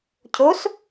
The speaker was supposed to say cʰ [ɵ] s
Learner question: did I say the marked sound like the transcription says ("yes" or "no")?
no